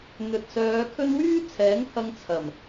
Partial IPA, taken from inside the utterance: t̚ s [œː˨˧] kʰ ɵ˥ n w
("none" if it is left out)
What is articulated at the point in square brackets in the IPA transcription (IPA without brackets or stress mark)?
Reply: œː˨˧